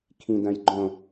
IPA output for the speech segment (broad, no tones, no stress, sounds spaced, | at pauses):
kʰ ĩ d ɐ̃ j ɡ͡ǃ õ